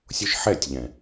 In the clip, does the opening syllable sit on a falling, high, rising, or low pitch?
high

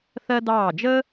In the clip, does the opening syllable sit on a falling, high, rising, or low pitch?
high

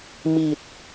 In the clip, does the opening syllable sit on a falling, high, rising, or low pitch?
low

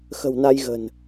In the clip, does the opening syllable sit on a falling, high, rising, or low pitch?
low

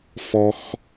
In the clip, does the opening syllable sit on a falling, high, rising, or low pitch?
high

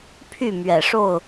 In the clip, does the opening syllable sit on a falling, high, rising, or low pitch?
falling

